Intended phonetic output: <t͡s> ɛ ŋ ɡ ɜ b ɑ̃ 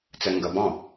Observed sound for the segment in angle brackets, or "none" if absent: t͡s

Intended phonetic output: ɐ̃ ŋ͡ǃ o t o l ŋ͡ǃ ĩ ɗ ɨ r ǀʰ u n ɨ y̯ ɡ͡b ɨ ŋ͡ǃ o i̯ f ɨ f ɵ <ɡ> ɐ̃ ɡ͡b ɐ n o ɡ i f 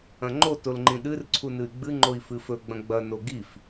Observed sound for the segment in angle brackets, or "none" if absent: ɡ͡b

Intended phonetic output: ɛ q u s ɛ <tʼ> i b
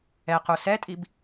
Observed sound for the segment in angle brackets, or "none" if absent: tʼ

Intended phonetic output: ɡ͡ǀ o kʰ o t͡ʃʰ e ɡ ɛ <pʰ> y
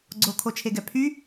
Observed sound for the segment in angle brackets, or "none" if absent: pʰ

